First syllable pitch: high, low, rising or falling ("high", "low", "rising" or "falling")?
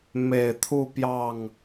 low